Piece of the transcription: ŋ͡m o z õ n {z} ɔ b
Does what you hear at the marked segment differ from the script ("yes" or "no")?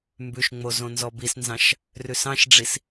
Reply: no